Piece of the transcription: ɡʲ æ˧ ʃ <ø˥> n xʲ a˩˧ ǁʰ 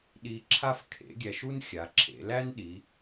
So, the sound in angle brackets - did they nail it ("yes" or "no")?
no